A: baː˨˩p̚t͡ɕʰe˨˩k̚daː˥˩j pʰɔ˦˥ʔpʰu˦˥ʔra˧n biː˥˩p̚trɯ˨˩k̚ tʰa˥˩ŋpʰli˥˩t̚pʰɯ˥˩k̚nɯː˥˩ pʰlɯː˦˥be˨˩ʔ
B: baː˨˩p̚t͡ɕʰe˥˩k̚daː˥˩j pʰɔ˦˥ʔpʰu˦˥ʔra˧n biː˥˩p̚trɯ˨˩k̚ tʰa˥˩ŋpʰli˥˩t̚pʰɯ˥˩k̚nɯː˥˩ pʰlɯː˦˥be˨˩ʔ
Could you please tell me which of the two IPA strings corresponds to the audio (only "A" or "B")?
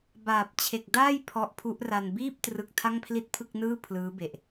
A